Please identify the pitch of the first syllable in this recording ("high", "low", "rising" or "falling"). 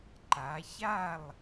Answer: rising